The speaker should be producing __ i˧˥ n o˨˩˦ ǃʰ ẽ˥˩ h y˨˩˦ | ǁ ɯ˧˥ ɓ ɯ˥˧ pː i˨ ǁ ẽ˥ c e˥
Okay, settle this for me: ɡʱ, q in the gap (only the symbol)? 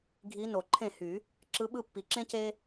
ɡʱ